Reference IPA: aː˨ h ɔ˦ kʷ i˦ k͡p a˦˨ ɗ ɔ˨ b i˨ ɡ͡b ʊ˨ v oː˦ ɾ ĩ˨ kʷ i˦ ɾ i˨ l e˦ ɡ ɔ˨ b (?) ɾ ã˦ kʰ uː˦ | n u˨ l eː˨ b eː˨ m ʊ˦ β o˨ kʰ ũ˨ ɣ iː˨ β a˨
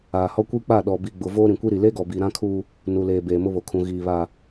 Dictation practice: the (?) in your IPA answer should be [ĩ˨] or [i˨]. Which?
i˨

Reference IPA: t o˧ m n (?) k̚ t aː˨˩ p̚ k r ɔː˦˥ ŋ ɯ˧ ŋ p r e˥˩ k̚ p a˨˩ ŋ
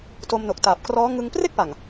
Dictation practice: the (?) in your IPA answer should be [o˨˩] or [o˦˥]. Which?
o˨˩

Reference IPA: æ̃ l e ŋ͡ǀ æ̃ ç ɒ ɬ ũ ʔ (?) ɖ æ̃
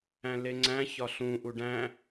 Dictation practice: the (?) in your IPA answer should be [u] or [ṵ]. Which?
u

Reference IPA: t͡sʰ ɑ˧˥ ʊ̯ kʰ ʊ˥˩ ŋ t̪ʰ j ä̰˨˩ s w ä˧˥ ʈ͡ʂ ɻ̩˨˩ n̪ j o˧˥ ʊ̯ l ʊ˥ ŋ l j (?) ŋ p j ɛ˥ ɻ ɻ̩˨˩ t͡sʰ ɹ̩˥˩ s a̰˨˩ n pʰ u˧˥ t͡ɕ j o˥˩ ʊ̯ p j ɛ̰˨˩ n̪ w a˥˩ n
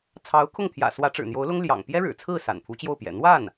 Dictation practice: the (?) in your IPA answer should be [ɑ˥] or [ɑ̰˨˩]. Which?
ɑ̰˨˩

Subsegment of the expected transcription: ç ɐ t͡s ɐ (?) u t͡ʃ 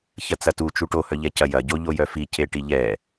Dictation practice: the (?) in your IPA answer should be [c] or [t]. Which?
t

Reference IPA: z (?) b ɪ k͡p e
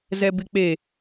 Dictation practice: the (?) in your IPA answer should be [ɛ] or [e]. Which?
ɛ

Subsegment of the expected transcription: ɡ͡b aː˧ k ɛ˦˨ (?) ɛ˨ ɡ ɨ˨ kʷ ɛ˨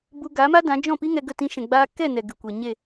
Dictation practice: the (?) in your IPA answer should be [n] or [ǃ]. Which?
n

